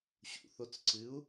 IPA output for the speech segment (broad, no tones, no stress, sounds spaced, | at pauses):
ɕ ṵ θ o t͡s ǀ ɨ u̯